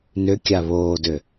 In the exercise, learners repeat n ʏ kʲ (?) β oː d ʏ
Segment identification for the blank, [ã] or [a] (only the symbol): a